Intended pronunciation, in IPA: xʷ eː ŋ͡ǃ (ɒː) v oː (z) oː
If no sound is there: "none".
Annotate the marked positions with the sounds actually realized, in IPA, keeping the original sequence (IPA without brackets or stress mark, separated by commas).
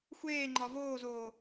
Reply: ɒ, z